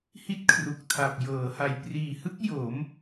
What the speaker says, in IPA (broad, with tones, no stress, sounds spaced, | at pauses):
h i˥˩ t̚ kʰ r u˨˩ k̚ tʰ a˨˩ p̚ j ɤː˩˦ h a˨˩ j p r iː˨˩ h ɯ˦˥ k̚ j o˩˦ m